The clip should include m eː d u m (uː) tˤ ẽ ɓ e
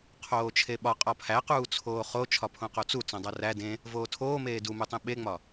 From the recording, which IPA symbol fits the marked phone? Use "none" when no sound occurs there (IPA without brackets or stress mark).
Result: u